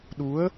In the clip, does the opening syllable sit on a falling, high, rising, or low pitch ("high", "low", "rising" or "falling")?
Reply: rising